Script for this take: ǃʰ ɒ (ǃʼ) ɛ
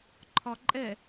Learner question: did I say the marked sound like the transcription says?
yes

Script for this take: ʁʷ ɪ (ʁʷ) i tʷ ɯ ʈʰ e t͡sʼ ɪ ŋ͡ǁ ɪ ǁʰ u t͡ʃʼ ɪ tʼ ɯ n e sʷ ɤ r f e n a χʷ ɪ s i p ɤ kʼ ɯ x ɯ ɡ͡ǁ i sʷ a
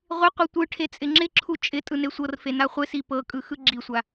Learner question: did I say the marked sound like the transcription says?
no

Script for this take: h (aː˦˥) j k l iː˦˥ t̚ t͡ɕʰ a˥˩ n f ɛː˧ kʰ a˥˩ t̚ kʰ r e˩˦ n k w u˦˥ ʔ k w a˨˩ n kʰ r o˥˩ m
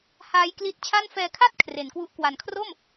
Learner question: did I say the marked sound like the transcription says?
yes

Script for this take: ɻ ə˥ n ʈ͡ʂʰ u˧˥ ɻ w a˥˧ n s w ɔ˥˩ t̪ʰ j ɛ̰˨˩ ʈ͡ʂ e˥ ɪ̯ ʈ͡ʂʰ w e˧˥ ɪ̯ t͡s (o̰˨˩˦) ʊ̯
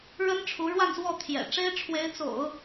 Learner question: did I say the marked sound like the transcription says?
yes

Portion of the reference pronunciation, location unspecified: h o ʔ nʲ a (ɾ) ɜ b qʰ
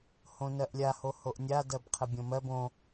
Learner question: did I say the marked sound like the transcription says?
no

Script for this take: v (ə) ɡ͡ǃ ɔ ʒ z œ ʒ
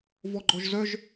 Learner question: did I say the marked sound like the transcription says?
no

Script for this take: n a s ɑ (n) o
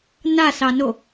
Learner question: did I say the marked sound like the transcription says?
yes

